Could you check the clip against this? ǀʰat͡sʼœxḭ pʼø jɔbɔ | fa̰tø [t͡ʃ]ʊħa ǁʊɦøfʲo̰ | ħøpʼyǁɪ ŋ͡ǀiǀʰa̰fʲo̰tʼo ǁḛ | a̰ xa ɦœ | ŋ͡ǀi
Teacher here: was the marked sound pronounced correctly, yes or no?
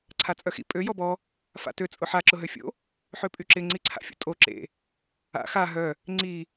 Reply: no